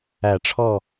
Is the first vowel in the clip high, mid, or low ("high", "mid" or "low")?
low